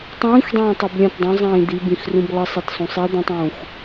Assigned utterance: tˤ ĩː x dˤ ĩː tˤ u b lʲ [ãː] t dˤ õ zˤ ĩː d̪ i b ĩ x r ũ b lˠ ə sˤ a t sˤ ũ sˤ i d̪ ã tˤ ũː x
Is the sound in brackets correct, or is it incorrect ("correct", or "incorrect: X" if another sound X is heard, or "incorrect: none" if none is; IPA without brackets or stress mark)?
incorrect: ã